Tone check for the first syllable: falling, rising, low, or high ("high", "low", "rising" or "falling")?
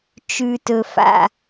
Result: low